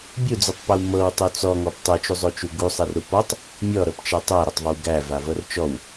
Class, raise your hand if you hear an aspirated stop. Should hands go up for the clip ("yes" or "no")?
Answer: no